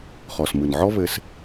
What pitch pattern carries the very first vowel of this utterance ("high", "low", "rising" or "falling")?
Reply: low